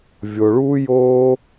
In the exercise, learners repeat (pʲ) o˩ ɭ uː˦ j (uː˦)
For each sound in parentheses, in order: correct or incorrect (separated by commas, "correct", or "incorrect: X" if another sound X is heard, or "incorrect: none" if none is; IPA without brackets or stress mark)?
incorrect: vʲ, incorrect: oː˦